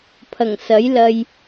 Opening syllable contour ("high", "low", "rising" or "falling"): low